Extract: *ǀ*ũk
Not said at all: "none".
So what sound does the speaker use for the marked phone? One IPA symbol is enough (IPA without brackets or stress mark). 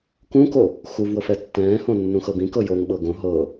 k